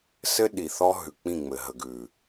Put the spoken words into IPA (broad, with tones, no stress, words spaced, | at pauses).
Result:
sɘ˦ ɗi˨θɔ˦ ɦʉ˨k͡pĩ˦˨ŋ͡mɘ˨ ɦə˨ɡʉ˨